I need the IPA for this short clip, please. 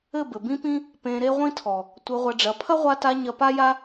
ɘ˦˨ b ɘ˨ b ĩ˦ p ĩ˦ | p ẽ˧ ɾ e˦ ʁʷ ĩ˦ tʰ ɔ˨ | tʷ ɘ˧ ʁʷ ɐ˧ ɖ͡ʐ ɐ˨˦ pʰ ɐ˦ ʁʷ a˧ t a˧ ɲ ɐ˧ p a˦ j a˦

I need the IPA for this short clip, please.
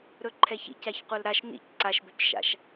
ɾ ɵ ǃʰ ɛ ç ḭ c a ç qʷ œ l ɾ a ʃ n ḭ c ǀ a ʃ b ɵ c ʃ a̰ ʃ

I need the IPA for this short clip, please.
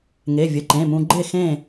ŋ e˩˧˩ vʲ ə˩˧˩ ǃ ẽ˩˧˩ m ũ˧ ɡ͡ǃ e˥˨ x ẽ˥˨

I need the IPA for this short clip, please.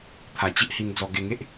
t̪ʰ a˨˩ t͡ɕ i˦ ʔ h i˧ n d͡z ɔ˧ ɡ e˧ ŋ e˦ ʔ

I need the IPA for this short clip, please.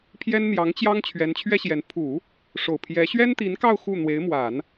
pʰ j ɛ˥ n n̪ j ɑ˧˥ ŋ t͡ɕ j ɑ˥ ŋ t͡ɕʰ ɥ ɛ˧˥ n t͡ɕʰ ɥ ɛ˥ ɕ j ɛ˧˥ n pʰ u˨˩˦ | ʂ o˨˩ ʊ̯ pʰ j ɛ˧˥ ɕ ɥ ɛ˥ n t̪ i˧˥ n k ɑ˥˧ ʊ̯ x u˥˩ n̪ w e˧˥ ɪ̯ m w a˨˩˦ n

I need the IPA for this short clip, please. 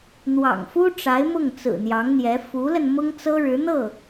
n̪ w ɑ̰˨˩ ŋ f u˥ ʈ͡ʂ a˧˥ ɪ̯ m ʊ˥˩ ŋ t͡s ɹ̩˨˩ n̪ j ɑ˧˥ ŋ n̪ j ɛ˧˥ f u˧˥ l ə˧ n m ʊ˥ ŋ t͡s ɤ˥ ɻ ɻ̩˧˥ n̪ ɤ˥˩

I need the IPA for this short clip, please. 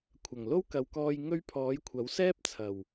kʷʰ ɐ˨˩ ŋ l o˥ w k ɐ˨ w k ɔː˧ j ŋ ɵ˥ ɥ pʰ ɔː˨˥ j kʷʰ ɐ˨˥ w s ɛː˥ p̚ t͡sʰ ɐ˨˩ w

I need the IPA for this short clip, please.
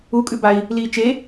u kʼ ʉ b a i̯ | l iː t͡ʃ e

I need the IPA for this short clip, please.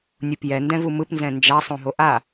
nʲ u p j ɛ n d ɛ̃ v u m ɯ p n z ɛ̃ n d͡ʒ a sˤ õ ɦ o ʔ a

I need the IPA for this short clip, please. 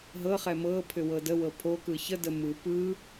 ɦ ɤ χ ɛ m ɤ pʰ ʏ w ɤ d ə w ɤ pʰ o k ɯ ç ə d ə m ɯ p ɯ

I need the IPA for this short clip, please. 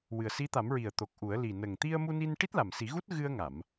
w ɨ˨˩ ə̯ s i˧˥ t̪ a˨˩˦ m ɹ i˨˩ ə̯ t̪ o˨˩ k̚ ʔ u˨˩˦ ə̯ l i˨˩ n ə˨˩ ŋ t̪ i˧ ə̯ m u˧ n i˧ n ʈ i˦˥ t̚ l a˨˩ m s i˨˩˦ ɣ u˦˥ t̚ ɣ ɨ˧ ə̯ ŋ a˨˩˨ m

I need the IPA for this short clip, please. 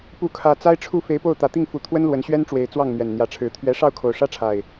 p u˨˦ kʰ ä˨˩ t͡s a˦ ɪ̯ ʈ͡ʂʰ u˥˨ f e˨˦ ɪ̯ p o˥˨ ʊ̯ t̪ ä˨˩ t̪ i˥˨ ŋ f u˨˦ t̪ʰ w ə˦ n l w ə˨˦ n ɕ ɥ ɛ˦ n ʈ͡ʂ w e˨˦ ɪ̯ t͡s w ɑ˥˨ ŋ n̪ ɥ ɛ˨˩ n n̪ j ä˨˦ ʈ͡ʂʰ ɻ̩˨˦ t̪ʰ ɥ ɛ˦ ʂ ɑ˥˨ ʊ̯ kʰ o˨˩ ʊ̯ ʂ ä˦ ʈ͡ʂʰ a˨˩ ɪ̯

